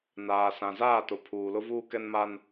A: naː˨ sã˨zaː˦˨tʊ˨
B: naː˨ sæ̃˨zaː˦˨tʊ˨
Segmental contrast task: A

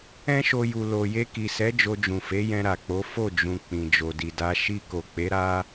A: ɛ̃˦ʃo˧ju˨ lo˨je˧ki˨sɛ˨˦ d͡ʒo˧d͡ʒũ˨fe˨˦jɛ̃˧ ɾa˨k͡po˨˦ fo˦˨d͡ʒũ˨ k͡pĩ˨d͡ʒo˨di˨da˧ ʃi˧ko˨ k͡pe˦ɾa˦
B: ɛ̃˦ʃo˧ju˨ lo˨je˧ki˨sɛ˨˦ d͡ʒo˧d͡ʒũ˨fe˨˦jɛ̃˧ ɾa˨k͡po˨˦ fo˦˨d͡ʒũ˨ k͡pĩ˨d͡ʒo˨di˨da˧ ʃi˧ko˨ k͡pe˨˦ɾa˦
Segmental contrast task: B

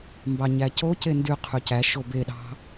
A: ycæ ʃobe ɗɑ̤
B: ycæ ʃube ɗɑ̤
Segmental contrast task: A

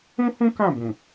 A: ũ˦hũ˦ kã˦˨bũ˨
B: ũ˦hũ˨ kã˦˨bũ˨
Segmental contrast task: A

